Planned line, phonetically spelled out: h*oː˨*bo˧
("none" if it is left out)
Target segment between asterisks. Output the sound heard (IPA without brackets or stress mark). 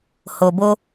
o˨